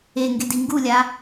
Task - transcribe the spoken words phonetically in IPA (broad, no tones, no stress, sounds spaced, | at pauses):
e ŋ ɡ e d i ŋ ɡ u lʲ a